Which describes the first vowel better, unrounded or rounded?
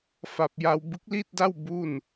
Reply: unrounded